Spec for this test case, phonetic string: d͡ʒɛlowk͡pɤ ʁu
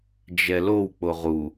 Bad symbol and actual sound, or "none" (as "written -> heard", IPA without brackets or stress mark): ɤ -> o